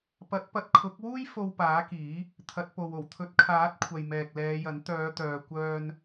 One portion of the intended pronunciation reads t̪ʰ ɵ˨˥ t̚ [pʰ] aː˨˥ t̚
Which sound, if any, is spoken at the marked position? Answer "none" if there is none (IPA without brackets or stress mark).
kʰ